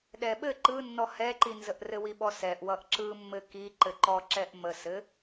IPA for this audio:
ɗ ɛ ɓ ɘ ǃ ɯ nː ɔ h ɛ ǃ i n z ə ʔ r ɘ w i ɓ ɔ s ɛ ʔ w ʌ ʔ ǁ ɯ mː ɘ k i ǃ ɘ ǃ ɔ ǁ ɛ ʔ m ə s ɘ

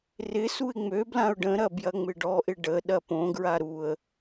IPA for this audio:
r ɪ s u ɪ̯ ŋ͡m ø b l ã ʊ̯ ɖ ə̃ ɾ ɐ b j ɐ ŋ͡m ɪ ɖ ɔ ʔ ɪ ɖ ə ɗ ɐ p õ ɡ ɹ a ɾ u ə̯

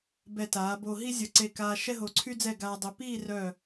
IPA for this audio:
b ɛ˧˩ t aː˩˧ b o˧ ɦ i˥ zʲ ə˧ ǀ e˧˩ k aː˧ ʃ ɛ˥ ɦ o˧ ǀʰ y˥ d͡z ɛ˥˧ ɡ aː˧ dˤ ø˧ p iː˥˧ r œ˧˩

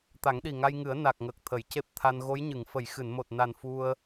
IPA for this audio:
t̪ a˨˩˦ ŋ ɗ i˨˩ ŋ a˧ j ŋ ɨ˨˩˦ ə̯ n a˨˩ k̚ ŋ ə˨˩ k̚ t̪ʰ ə˨˩˨ j c e˦˥ p̚ t̪ʰ a˧ n ɣ o˧˥ j ɲ ɨ˨˩˨ ŋ f ə˨˩˨ j x ɨ˨˩˨ n m o˨˩ t̚ n a˨˩ n f u˧ ə̯

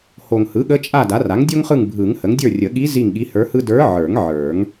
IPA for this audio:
h o˨ ŋ h ɯ˩˥ ɠ ə˧˥ t͡ʃʼ a˦˨ d a˩˥ r a˩˥ ŋ dʲ o˥ ŋ χ ɯ˦˨ ŋ bʱ ɯ˨˩˦ ŋ h ə˩˥ ŋ dʲ ə˞˦˨ rʲ ə˨˩˦ ɠ i˧˥ z i˦˨ ŋ ɠ i˧˥ h ə˞˧˥ h ɯ˥ d ə˞˧˥ ʕ ə˞˨˩˦ ŋ ʕ ə˞˨˩˦ ŋ

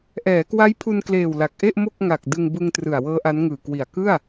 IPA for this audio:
ʔ ɛː˩˦ k w a˦˥ j pʰ u˧ n k l eː˨˩ w l a˨˩ k̚ ʔ e˥˩ ʔ m o˥˩ k̚ ŋ a˨˩ k̚ d ɯ˧ ŋ b ɯ˧ ŋ t r ɯ˨˩ a̯ w ɤː˦˥ ʔ a˦˥ n ŋ ɯː˨˩ k w i˨˩ a̯ k ɯ˥˩ a̯

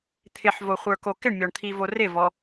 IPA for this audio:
t̪ʰ ɪ ħ v o χʷ ə˞ k o k ɪ ɳ mʲ ɔ ɳ t̪ʰ i v o r ɪ v ɔ

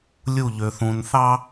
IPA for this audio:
lʲ u˦˨ ʎ ø˨ θ ũ˨ n θ ɑ˦

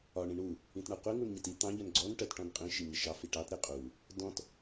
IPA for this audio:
ɒ ɳ ĩ ɳ u | ĩ t ɳ ʌ qʷ i ŋ u n ɲ ɪ t i t̪ ɑ̃ ʎ ʌ n ɡ͡ǀ ɔ n ʈ ɜ t ʈ ɔ̃ n qʼ ĩ ʃ i ɲ ɪ ʃ ɑ f i ʈ ɑ t ɾ ɪ qʼ u | d ɔ̃ t

